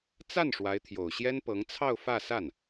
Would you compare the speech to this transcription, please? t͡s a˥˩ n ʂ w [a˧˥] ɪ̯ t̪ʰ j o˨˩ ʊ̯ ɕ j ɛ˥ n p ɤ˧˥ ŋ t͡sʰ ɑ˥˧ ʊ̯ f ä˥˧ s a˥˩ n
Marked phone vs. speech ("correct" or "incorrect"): correct